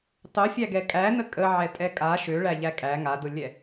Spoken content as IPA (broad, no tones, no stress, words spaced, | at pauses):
tˤøfʲæɡɛ kʼænə kʼəʕɛtʼɛ kʼa ʃøɭæʎæ kʼæ ŋadʊlʲɛ